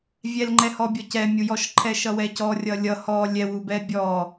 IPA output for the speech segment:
vʲ ɛ l ŋ͡ǃ ɛ h ɔ bʲ ɔ c ɛ mʲ u j ɔ ʃ ǃʰ ɛ ʃ ʌ w ɛ c ɔ rʲ ʌ lʲ ʌ h ɔ lʲ ɛ w u b ɛ bʲ ɔ

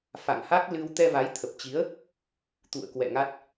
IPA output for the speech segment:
f a̰˧˨ ŋ h a˦˥ k̚ l ɨ˧ w t̪ ɛ˧ v a˨˦ j t̪ʰ ə˨˩ p̚ t͡ɕ i˨˦ ə̯ | t̪ ṵ˧˨ ə̯ k w ɛ̰˧˨ ŋ a˦˥ t̚

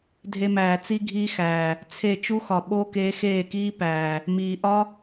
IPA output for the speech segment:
dʱ e˧ m æː˨ t͡s i˦ ɡʱ iː˦ x æː˨ | t͡sʰ e˦˨ t͡ʃ u˦ x ɒ˨ ɓ o˦ k eː˧ x eː˦˨ k iː˦ p æː˨ | m iː˨ ʔ ɒ˦

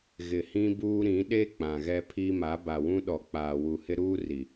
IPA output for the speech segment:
ɣ ɪ˨ h ĩ˦ b uː˦ ɾ ĩ˨˦ ɗ e˦ k͡p ã˨ ɣ ɛ˦ pʰ i˦ m a˨˦ b a˨ w ũ˦ ɗ ɔ˨ k͡p aː˨ w u˨ h ɪ˦ ɾ uː˦ r i˨

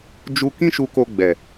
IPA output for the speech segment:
d͡ʒ u˧ k ĩ˦ ʃ u˧ k o˧ ɡ͡b ɛ˨

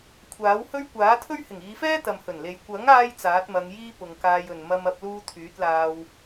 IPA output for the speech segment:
kʷʰ aː˨˥ w h ɵ˥ ɥ kʷ aː˨˥ t̪ʰ ɵ˥ ɥ h ɪ˨˩ ŋ iː˨˧ f ɛː˥ t̪ ɐ˨ m h ɵ˨˩ n l e˨ j kʷ ɐ˨˥ ŋ aː˧ j t͡s aː˨˥ t̚ m ɐ˨˧ ŋ j iː˥ p ʊ˨ ŋ k aː˧ j ɵ˨ n m ɐ˥ m ɐ˥ p̚ l uː˥ t̪ʰ yː˨˥ t̚ l aː˧ w

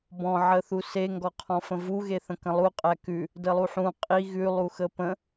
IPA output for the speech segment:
b ɔ̃ ʕ ə θ u s e ŋ ɡ ɔ qʰ ɔ̃ f ə̃ v u ɣ e θ ə̃ k ə̃ lˠ u qʼ æ k ʉ | d ə lˠ u ħ ũ qʼ i ɣ ʉ lˠ u x ə p ə̃

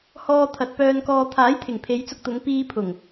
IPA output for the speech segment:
h ɔː˨ t̪ʰ ɐ˨ t̚ p œː˧ n k ɔː˧ t̪ʰ aː˨˥ j t̪ʰ ɪ˨˩ ŋ pʰ e˨˧ j t͡s ʊ˧ k̚ t̪ ʊ˨˧ ŋ p iː˧ pʰ ʊ˨˩ ŋ

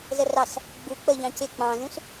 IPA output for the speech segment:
z ə r ɑ s | ɡ͡b u k͡p ə ʎ ɑ̃ c ɪ k͡p ɑ̃ z ũ s

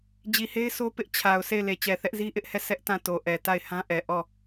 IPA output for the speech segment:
d͡ʑ i˨ h e˦ ɪ̯ sʰ o˦ p ɪ˦ ʔ t͡ɕʰ a˨ ʊ̯ s e˦˨ ɪ̯ l e˨ t͡ɕ ɛ˨ θ ɛ˦ ʔ z i˦ ʔ ɪ˦ ʔ h ɛ˦˨ s ɛ˦ ʔ t ã˦˨ t o˨ ʔ ɛ˨ t a˦˨ ɪ̯ h ã˦ ʔ ɛ˨ ʔ ɔ˦˨

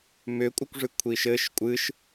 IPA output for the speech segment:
m ʏ kʷʼ ɨ kʷ ʐ ɨ kʷʰ i ʃ ɘ ʃ kʷʼ ɨ ʃ

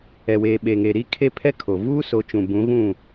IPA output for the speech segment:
ɛ˨ w eː˨ ɓ e˨ ŋ e˨ ɾ i˦ kʰ e˦ pʰ ɛ˦ kʰ o˨ v uː˦ s o˨˦ t͡ʃ ũ˨ b ũ˨˦ ɣ ũ˦˨

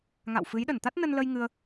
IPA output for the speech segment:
ŋ a̰˧˨ w f ɨ˨˦ j ɗ ə˧˩ n t̪ a˦˥ t̚ n ə˧ n l ə˧ j ŋ ɨ˧ ə̯

